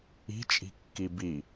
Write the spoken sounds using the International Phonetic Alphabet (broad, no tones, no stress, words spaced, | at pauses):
i̤t͡ʃʼi̤ kːibi